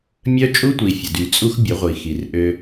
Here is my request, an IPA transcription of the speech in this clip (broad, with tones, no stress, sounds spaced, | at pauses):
mʲ œ˦ t͡ʃʼ u˦ tʷ i˨ fʲ ə˨ d y˨ t͡sʼ u˦ x bʲ ə˨˦ ʁʷ i˨ x i˨ r ʔ ø˦